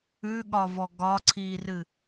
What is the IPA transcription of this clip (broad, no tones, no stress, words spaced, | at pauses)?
ʉɠɒvɔ ɡɒǀʰiːrɨ